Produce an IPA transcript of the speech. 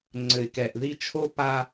ŋ͡ǀɘ˨ɪ̯kɛ˨ʔði˦ t͡ʃʰo˦pa˦

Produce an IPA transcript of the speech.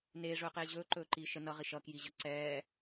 neːʐɵːqeː ʑɵːǃɵːǃiː ʃə nʌʁi ʃʌkjiʑʌ ǀɛː

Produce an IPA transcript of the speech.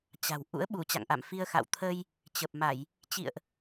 t͡ɕa̤˨˩w ʔṵ˧˥ə̯ ɓu˧˩ t͡ɕa̰˧˨ŋʔa̰˧˨mfi˧ə̯xa̰˧˨w t̪ʰəː˧j | t͡ɕə˨˩p̚ma˧˩˨j | t͡ɕḭ˧˨ə̯ʔ

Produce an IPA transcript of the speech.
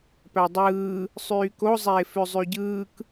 pædˤɯː | sˤyːko zˤeːføzˤyɟɯːk

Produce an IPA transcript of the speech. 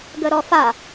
ɡəɾɔfa

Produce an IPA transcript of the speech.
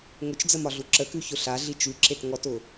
ŋʊt͡ʃd͡zəmɒɮu ǁəkʉçʊ ɬaɮi t͡ʃʉǁetŋɔtʊ

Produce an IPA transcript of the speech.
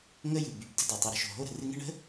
ŋə˦jɨ˩ by˩bdə̤˦ do˩tˤə˨ ɾə̤˦ʃo̤˩ɦo˥ɾə̤˨ rɨ˦ŋə̤˥ ɳə̤˥

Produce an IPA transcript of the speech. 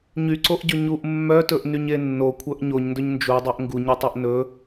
ɲyǀoʔɟɵ ɲuʔ mːœtɵʔnyɲe nːokʷʰœʔ ɲoɲndɵɲ nd͡ʒudˤoʔ ŋɡuɲœtˤoʔ nɵ

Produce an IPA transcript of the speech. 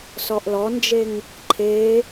sɔʔlɔnd͡ʒeŋ | ǃʰe

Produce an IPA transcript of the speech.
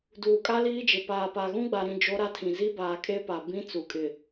duː˨kʼa˦liː˦d͡ʒɪ˨ paː˨pa˨ ɣũ˦ɡ͡ba˨ɾĩ˨ d͡ʒo˦ɾa˦tʰĩ˨ zi˦baː˨kʼe˦pa˨ bĩ˦ t͡su˨ kʼɪ˨

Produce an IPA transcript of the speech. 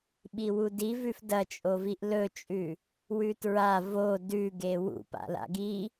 ɓiwudivʉf dɐt͡ʃʼoviʔ lɵt͡ʃʼʉ | wʉtɹa vo dʉɡe wṵpa̰la̰ ɡi

